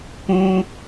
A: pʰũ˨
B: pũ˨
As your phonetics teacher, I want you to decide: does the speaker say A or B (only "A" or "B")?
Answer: B